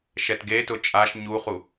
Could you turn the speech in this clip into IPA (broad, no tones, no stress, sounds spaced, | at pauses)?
ʃ ɛ t ɡ e t ʊ t͡ʃʼ a ʃ ɲ u χ u